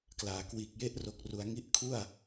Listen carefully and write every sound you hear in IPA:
klaː˩˦kwiː˨˩k̚je˥˩ʔ ro˨˩k̚ru˩˦a̯ŋi˦˥ʔ kʰu˥˩a̯

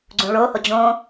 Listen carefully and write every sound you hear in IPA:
ɡ͡ǀũɭoho d͡ʑõ

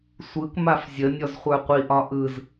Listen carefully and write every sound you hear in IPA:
sʷɯk mafzʲə nʲɔzχʷə˞qʷiʔ ɒʔɯz

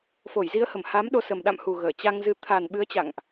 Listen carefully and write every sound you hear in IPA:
fo˧˩jzi˨˦ə̯hə˧˩m ha˨˦mɗo˨˦ sə˨˩mɗa̰˧˨mhu˨˩ ɣəː˧˩t͡ɕa˧ŋzɨ˧ t̪ʰa˨˩n ɓɨ˨˦ə̯t͡ɕa̰˧˨ŋʔ

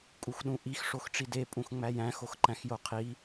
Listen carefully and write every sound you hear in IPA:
kʼuxɗũʔix ʂoxʈ͡ʂide pʼũxŋ͡mæjæ̃ xoxǃæ̃xjoqʰi

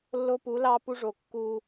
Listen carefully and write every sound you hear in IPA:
lːo˦pu˨˦lɑ˦ pu˦ʐo˨ kːu˦

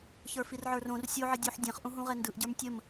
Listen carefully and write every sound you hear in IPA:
çə˞firʕə˞rõr sʲoʕə dʲuħ dʲɛ̃χʔũɦũʁɛ ndɯʔɟə˞m tʲəm

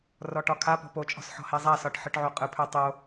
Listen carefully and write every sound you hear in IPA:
rɔʈɒkʰapɔ̤ pot͡ʃʼɔ̤s ħɔ̤hezˤasɒʈ ħɯʈʕoqʼɯpʰœ tˤo

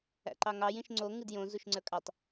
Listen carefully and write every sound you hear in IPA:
æ̰ǃɑŋɑj ĩʃŋ͡ǀo ŋɨdjõ zuʃŋ͡ǀə˞kʼɑtˤ

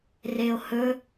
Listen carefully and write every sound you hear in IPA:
reo̯hɵ

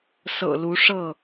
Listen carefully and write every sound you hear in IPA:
sɤ̰˨˩lu˨˦ ʂɤ˥˨

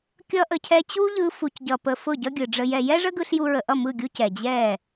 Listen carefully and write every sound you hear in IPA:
kʲʌ˧ʔə˨cʰɛ˧ t͡ɕu˦ʎɯ˧ fu˨cɟʌ˨ pə˨ fʊ˦˨ɟʌ˦ɡʲɯ˨ɖ͡ʐə˧ jɛ˨ jɛ˦ʐə˦ɡɯ˧ɬ ju˧ɹə˨ʔʌ˦˨ mɯ˦˨ɡʲu˦ cɛ˨d͡ʑɛ˦˨

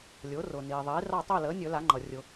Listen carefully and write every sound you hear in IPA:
lʲʊː˩˥rʊː˩ niː˩ðˤiː˩˥ rɑ˥˨ tˤʊː˥˨ləː˩˥nʲɵ˨˩˦ la˩˥ŋ͡ǃʌ˩rʲʊ˨˩˦

